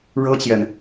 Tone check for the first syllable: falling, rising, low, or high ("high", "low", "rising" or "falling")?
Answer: high